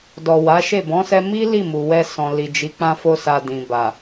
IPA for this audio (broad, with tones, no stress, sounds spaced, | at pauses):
d ɔ˨ w a˨˦ ʃ e˦˨ b ɔ̃˨˦ s ɛ˧ m i˦ l i˦˨ m u˨ w ɛ˧ s ɔ̃˨ l i˨ d͡ʒ i˨˦ k͡p ã˦ f o˦ s a˧ d ĩ˨ b a˨